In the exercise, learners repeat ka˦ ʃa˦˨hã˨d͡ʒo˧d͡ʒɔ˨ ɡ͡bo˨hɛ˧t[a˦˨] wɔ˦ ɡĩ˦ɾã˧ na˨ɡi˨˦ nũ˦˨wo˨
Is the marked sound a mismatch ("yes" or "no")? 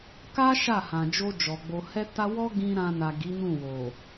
yes